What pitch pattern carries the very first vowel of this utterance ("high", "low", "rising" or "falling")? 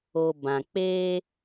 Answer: low